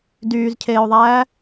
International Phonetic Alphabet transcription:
d yː z cʰ eː o̯ ðˤ æː

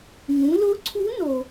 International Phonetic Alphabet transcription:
ŋ ũ˩˧ l ʊ˧˥ ǀʰ u˧˥ n o˧

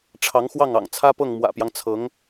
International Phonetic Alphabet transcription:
ʈ͡ʂʰ ɑ˧˥ ŋ x w ɑ˥˩ ŋ ɑ̰˨˩ ŋ t͡sʰ ä˥ p ɤ˥˩ ŋ m w ä̰˨˩ p j ɑ˦ ŋ t͡sʰ ɤ˧˥ ŋ

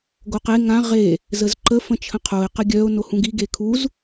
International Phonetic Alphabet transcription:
ɡ o q e ŋ ã ʁ e | z ə z ǃ ə f ə̃ t͡ʃʰ ə̃ qʰ o ɪ̯ q ə ɡʲ œ ʊ̯ n o h ũ ɡ i ɡ e kʰ u z

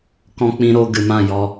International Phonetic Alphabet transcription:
k ɔ̃˧ k͡p ĩ˧ ɾ o˧ ɡ ɨ˨ m ã˦˨ j ɔ˧

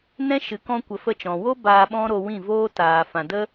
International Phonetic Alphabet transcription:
n ɛ̃˦ ʃ ɨ˨ k ɔ̃˧ kʷ ə˨ f ə˦˨ t͡ʃ ɔ̃˨ w o˦ b aː˧ ɓ ɔ̃˦ ɾ o˧ w ĩ˦˨ v oː˦ t aː˨ f ã˨ d ə˦

